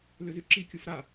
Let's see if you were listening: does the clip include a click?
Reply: yes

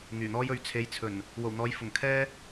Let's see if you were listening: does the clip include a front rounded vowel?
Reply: yes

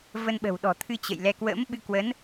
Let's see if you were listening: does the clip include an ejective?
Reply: no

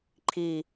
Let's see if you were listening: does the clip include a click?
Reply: yes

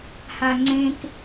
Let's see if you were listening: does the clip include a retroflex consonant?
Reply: no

